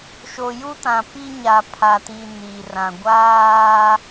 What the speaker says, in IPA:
ʃ o˨ j u˦ t ã˨ p i˦ ɲ a˨ pʰ a˨ t i˨ n i˨ r ã˨ ɡʷ aː˦

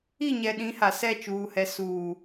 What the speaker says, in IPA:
i˦˨ ɲ ɛ˨ ɗ ĩ˨˦ h a˨ s ɛ˦˨ t͡ʃ uː˨ h ɛ˨ s uː˨

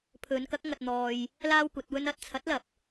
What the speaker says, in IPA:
pʰ ɵ˨˧ n k ɐ˨˥ k̚ ŋ ɐ˧ t̚ n̪ ɔː˧ j | l aː˥ w kʷ ɐ˨˥ t̚ w ɵ˥ n ɐ˨ t̚ t͡sʰ ɐ˨˥ t̚ l ɐ˨˥ p̚

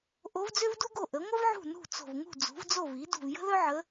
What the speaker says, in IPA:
ʔ o˧˥ v d͡z ø˥ v d u˥ ɡ o˥˩ ʔ ə˩˥ ŋʷ ə˥ v ʕ ṳ˥˩ n ṳ˥˩ t͡s o̤˧˩ v ŋ ṳ˥˩ d͡z ṳ˩˥ v d͡z o˥˩ v i˩˥ d ṳ˥˩ v j ə̤˥ ð œ˥ ʕ ə˧˥

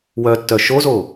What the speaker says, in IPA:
w œ tː œ ʃ o z o

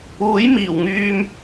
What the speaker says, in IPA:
uː˨˥ j m iː˨˩ w ŋ yː˧ m

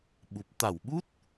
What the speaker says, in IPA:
ɓ u˨˩ p̚ t̪ a˧˩ w ɓ u˦˥ t̚

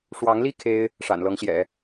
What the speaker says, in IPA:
ʂ w ɑ˧˥ ŋ l i˥ kʰ e˥ ɪ̯ | ʂ a̰˨˩ n l ɤ˧˥ ŋ ɕ j ɛ̰˨˩˦

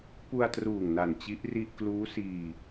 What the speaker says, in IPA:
p u˧ a̯ t r uː˨˩ ŋ n a˨˩ n t͡ɕ i˦˥ ʔ r i˥˩ ʔ k l uː˦˥ s iː˧

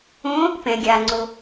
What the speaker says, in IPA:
õ | p ɛ̃ ɡʲ a ŋ͡ǀ o

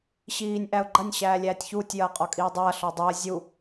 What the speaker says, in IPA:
ɕ iː nʲ ʔ æ ʊ̯ ɡ͡ǃ ɐ nʲ ɕ æː lʲ æː tʲ ç uː tʲ j ɐː qʼ ɒ kʼ iː dˤ ɐː ɬ ɒ dˤ u ə̯ zʲ u

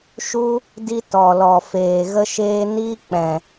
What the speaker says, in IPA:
ʃ u˦ | d i˦ t ɔ˨ l ɔ˨ f eː˨ ɣ ə˦ ʃ eː˦ n iː˦ k͡p ɛ̃˨

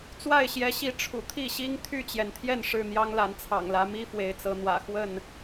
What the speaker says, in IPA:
t͡s w a˥˨ ɪ̯ ɕ j ɛ˨˦ ɕ i˨˦ ʈ͡ʂʰ ṵ˨˩ t̪ʰ i˥˨ ɕ i˦ ŋ t̪ʰ y˥˨ t͡ɕ j ɛ˩ n t̪ʰ j ɛ˥˨ n ʂ ɻ̩˥˨ n̪ j ɑ˦ ŋ l a˨˦ n t͡sʰ ɑ̰˨˩ ŋ l ä˨˦ m i˦ f w e˨˦ ɪ̯ t͡s ɤ˨˦ n̪ w ä̰˨˩ x w ə˥˨ n

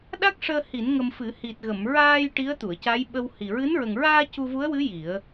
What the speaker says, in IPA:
ɗ a˦˥ k̚ ʂ əː˧ h i˨˩˦ n ŋ ə˧ m f ɨ˨˩˦ h i˨˩ t̚ ɣ ə˨˩˨ m ɹ aː˧ j ʈ i˧˥ ə̯ t̪ u˨˩˨ ə̯ c a˧˥ j ɓ ə˧ w h i˨˩ ɹ ɨ˧˥ n ɹ ə˨˩ ŋ ɹ aː˧ c u˧ v u˧˥ ə̯ w ɨ˧˥ j i˨˩˦ ə̯

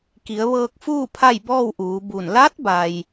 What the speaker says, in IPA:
k i˩˧ ə̯ ʋ ɤː˧ k̚ f uː˥˨ pʰ a˥˨ j b ɔː˥˨ w ʔ uː˩˧ b u˧˩ n l a˧˥ t̚ b a˩ j

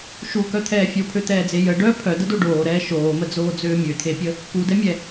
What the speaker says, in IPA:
ʃ u k œ t̪ʰ ɛː fʲ o pʰ ø t̪ ɛː d͡z e j ə ɖ œ pʰ œ d ə d o ɖ oː ɾ ɛː ʃ oː m ə d͡z oː d͡z øː mʲ ø t̪ʰ e pʲ ə | k u d ɛ mʲ ɛ

